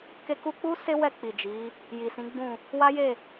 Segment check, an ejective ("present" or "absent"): absent